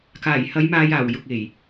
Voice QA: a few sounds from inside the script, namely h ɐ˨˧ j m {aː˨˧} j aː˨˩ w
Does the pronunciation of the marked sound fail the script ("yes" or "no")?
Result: yes